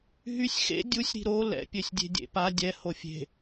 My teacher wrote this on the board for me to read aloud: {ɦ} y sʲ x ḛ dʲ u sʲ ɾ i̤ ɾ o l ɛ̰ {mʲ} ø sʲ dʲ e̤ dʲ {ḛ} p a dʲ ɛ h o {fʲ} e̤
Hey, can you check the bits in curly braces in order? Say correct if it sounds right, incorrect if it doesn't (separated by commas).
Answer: correct, incorrect, correct, correct